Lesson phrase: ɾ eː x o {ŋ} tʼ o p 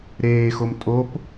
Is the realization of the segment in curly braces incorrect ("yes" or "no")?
yes